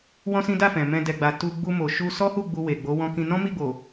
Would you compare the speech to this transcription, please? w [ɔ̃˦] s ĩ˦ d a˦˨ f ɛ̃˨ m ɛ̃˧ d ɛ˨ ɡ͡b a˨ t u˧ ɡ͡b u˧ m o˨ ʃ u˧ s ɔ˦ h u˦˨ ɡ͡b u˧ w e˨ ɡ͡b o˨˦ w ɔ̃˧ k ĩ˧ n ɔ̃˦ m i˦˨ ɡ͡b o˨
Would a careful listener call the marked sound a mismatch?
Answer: no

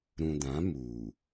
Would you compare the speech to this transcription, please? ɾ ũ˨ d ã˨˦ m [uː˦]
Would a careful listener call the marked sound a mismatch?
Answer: yes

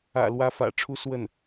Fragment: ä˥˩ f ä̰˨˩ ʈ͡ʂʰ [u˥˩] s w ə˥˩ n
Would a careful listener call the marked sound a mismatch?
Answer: yes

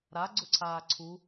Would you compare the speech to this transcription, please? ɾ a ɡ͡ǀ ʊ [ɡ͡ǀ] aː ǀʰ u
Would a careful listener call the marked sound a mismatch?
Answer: yes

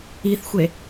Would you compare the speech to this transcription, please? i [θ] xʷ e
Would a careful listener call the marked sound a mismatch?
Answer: no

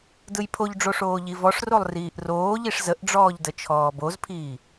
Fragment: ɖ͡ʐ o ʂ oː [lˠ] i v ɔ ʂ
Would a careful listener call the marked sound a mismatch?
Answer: yes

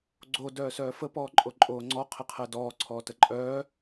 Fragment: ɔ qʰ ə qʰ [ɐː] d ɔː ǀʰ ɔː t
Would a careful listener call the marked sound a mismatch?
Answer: yes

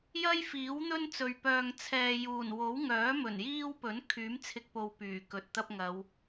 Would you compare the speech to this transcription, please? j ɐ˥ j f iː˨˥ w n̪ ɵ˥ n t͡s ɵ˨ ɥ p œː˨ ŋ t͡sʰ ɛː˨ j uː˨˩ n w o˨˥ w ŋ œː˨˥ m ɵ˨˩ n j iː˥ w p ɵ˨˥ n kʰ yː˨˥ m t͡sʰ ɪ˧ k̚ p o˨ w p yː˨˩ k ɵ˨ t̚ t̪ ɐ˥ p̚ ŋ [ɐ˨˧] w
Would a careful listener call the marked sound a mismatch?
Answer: no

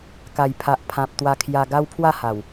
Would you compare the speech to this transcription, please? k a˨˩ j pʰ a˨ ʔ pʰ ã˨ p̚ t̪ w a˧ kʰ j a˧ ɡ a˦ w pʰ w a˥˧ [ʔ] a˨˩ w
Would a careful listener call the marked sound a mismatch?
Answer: yes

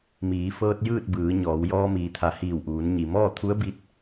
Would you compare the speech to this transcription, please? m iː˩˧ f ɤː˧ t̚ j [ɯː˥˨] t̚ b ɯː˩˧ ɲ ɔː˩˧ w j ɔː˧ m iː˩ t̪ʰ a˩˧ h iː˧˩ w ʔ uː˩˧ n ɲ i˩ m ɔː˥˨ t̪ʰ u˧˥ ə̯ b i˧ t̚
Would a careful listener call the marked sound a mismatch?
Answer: no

